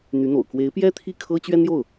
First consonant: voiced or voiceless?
voiced